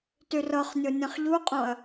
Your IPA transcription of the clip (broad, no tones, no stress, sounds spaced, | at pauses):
t y r ɤ χ nʲ o nʲ ə̃ χ ʎ u qʼ õ ɐ̯